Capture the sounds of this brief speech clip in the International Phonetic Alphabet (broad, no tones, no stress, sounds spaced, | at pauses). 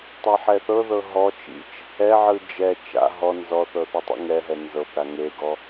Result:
tˤ ɛ ħ ɛ θ ɤ ð ɤ ɦ ɔ t͡ʃ ḭ t͡ʃ | ɛ ʕ ɯ d͡ʒ ɛ t͡ʃ a̰ ɦ ɔ n z ɔ θ ɤ θ o tˤ ḭ ŋ ɛ ɦ ɛ n z ɤ p ɾ a ŋ e ɡ ɔ